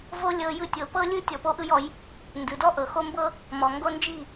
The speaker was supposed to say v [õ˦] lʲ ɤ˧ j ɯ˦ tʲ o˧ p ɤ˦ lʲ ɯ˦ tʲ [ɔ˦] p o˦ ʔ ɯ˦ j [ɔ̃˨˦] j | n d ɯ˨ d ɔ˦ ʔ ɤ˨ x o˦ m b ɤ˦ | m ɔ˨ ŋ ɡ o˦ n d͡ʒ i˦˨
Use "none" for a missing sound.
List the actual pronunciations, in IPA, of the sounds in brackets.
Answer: o˦, ɔ˧, ɔ˨˦

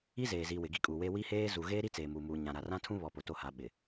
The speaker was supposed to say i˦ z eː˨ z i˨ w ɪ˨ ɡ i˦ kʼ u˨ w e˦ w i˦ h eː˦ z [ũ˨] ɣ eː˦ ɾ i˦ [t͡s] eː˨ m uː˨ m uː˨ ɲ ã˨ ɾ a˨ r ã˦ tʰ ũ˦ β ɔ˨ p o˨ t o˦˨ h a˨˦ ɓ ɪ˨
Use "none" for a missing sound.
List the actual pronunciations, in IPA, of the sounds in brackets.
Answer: u˨, t͡s

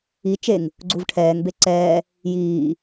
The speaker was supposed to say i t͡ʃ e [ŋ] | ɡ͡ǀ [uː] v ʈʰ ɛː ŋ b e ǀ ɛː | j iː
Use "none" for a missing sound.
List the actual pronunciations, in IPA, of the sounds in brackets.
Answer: ŋ, u

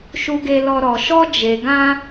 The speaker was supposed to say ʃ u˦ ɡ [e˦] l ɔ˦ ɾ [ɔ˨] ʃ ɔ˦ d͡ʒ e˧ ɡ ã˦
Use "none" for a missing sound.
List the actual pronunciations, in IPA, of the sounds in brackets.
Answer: e˦, ɔ˧

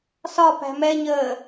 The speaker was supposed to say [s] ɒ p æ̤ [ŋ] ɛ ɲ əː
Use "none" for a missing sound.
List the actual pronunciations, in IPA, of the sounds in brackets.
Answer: s, m

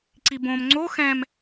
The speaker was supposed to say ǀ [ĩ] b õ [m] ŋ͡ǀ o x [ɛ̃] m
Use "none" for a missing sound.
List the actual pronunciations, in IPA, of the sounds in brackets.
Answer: i, m, ɛ̃

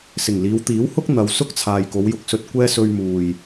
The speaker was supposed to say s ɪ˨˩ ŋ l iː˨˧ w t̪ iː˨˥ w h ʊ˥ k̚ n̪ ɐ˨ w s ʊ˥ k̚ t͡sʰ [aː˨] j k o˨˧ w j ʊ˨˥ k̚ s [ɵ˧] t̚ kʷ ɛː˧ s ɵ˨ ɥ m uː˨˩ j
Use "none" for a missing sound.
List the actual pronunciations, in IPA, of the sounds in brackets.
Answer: aː˨, ɵ˧

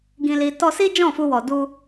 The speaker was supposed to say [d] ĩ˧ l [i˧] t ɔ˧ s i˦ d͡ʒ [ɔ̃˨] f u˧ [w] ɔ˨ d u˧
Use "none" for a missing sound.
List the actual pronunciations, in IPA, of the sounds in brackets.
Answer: ɡ, i˧, ɔ̃˦˨, w

